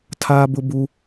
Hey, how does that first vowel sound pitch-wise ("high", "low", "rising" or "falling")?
high